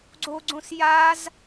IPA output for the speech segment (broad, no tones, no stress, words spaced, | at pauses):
ɡ͡ǀoɡ͡ǀõs jaz